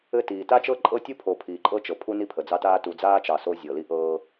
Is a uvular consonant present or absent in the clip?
absent